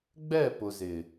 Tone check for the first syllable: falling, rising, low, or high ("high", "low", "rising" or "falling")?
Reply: falling